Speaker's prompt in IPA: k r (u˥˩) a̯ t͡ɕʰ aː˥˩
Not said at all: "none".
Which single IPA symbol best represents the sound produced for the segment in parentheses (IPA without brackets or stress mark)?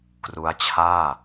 u˦˥